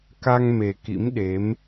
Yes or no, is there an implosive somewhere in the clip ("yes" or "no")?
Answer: yes